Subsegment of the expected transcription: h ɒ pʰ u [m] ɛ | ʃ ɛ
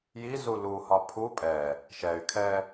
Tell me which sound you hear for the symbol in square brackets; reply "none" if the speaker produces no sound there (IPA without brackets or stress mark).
pʼ